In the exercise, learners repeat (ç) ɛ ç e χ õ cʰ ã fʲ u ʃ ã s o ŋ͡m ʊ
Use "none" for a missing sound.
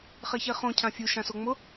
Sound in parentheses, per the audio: χ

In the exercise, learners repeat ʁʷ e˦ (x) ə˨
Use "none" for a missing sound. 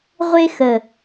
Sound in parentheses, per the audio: x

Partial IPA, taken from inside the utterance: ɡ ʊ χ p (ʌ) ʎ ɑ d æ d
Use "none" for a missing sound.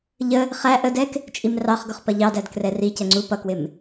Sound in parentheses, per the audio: ʌ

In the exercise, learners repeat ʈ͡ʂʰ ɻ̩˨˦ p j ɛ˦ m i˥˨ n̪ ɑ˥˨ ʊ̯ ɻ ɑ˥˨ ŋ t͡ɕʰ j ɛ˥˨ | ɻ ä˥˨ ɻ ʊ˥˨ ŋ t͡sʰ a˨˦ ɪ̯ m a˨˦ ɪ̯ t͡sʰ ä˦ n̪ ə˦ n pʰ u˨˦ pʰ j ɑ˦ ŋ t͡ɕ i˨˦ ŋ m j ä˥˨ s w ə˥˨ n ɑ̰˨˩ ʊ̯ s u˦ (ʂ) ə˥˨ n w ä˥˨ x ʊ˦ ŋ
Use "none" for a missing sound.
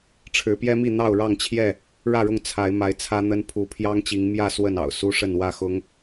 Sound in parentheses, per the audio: ʂ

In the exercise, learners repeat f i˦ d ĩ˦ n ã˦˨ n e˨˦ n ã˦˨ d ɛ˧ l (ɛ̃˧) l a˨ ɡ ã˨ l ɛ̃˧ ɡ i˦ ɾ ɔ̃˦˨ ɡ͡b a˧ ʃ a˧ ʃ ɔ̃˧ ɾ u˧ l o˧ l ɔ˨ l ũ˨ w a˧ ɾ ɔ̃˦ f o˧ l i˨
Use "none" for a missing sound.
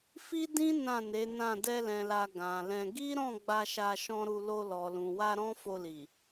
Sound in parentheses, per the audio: ɛ̃˨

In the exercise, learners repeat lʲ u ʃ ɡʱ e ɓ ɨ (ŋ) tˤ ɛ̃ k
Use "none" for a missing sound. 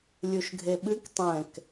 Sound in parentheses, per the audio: k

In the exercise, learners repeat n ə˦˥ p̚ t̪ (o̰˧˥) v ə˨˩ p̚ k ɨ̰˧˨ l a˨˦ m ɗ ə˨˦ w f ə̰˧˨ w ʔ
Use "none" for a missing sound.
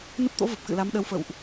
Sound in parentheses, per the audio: o̰˧˥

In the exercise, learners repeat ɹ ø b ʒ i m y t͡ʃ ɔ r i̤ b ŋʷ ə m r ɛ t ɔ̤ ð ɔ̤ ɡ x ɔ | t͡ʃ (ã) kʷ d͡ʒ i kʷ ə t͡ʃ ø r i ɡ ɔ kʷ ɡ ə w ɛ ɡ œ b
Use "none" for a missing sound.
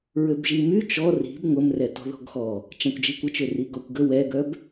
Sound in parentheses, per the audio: ã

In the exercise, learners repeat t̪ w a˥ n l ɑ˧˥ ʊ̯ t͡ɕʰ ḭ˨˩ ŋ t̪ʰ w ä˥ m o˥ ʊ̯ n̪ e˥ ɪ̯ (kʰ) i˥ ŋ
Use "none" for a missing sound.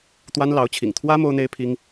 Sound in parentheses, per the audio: pʰ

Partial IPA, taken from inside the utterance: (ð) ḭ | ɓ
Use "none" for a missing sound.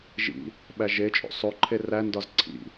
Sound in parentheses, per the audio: ʒ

